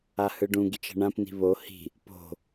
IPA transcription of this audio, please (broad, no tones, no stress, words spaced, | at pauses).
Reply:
ahɯɖũɡit͡ʃ ɛ̤ɳãpni̤ βo hi̤ | po̤